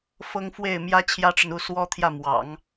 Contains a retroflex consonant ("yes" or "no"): yes